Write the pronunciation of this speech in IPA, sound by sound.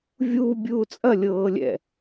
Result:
vʲ uː bʲ uː t͡sʼ ɐ lʲ ɤː lʲ ɛ̰

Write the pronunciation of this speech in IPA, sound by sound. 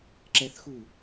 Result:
ǁ ɛ θ x u

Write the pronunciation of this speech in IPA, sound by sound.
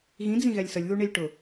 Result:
ɣ ĩ d͡z ĩ ɣ ɛ lʲ s ə lʲ ð u ɳ i lʲ ʈ ʊ

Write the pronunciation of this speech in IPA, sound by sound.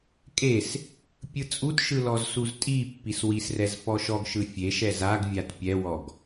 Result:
kʼ e s | pʲ ɯ t͡sʼ u t ʃ ɯ l ɔ z s u z tʼ i pː i s w i s r ɛ z f ɔ ʃ ɔ ɡ ʃ ɯ fʲ e ʃ ɛ z a ɡ vʲ a t pʲ ɛ w ɔ ɡ

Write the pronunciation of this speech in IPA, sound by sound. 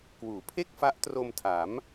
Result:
k w uː˩˦ pʰ e˥˩ k̚ f a˦˥ ʔ t r o˧ m tʰ a˩˦ m

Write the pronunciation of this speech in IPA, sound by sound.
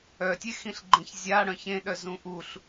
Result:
œ tʲ e x ĩ ɬ ɡ͡ǃ ẽ ç zʲ a ɽ œ̃ ç ẽ ɗ œ z ũ ʔ u ɬ

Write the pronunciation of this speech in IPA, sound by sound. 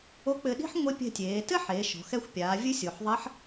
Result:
o˧˥ k͡p ɘ˧ ɗ i̤˥ ħ ŋʷ e˧˥ pʲ ɛ̤˧ tʲ eː˩˧ t ɘ˥ ħ eː˩˧ ʃ ɔ̤˩˧ x ɛ˧ xʷ pʲ aː˩˧ vʲ ɨ˧˥ sʲ o˩ ħ ðˤ ɐ˧˥ ħ

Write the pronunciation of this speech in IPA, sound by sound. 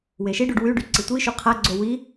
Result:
w e ʃ i ɖ u ɖ w y ɖ y ǀ i tʷ i ʃ u qʰ a ɡ͡ǀ o w i

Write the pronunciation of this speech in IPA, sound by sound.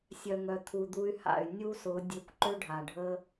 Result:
sʲ œ˨ ŋ œ˨ t̪ʰ u˨ d̪ u˧ y̯ h a̰˨ y̯ nʲ u˦ s ʊ˨˦ dʲ ø˧ kʷ ǃ ø˦ ɖʱ a˨ ɖʱ ə˦

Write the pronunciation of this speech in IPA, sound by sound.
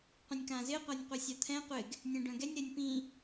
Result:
qʷ ɛ̃ nʲ k ã z ɪ ə̯ qʷ a nʲ qʷ œ sʲ a t̪ʰ ɛ̃ qʷ ɪ ɡ | nʲ ɛ̃ ɖ œ̃ ɡ ɛ nʲ ɾ ɛ nʲ p ĩ

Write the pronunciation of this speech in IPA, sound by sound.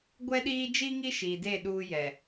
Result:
ɡʷ ɛ˦ ɗ iː˦ d͡ʒ i˦ ŋ i˦ ʃ iː˨ d e˦˨ ɗ uː˦ j ɛ˨

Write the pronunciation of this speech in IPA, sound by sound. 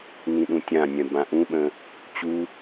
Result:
n ĩ ɗ ũ tʲ ã nʲ œ̃ b ã ʔ ũ ɓ ə̃ | t͡ɕ u

